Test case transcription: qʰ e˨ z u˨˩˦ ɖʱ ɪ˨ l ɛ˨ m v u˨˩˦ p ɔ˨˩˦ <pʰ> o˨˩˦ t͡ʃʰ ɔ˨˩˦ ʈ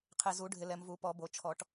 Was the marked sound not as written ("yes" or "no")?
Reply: yes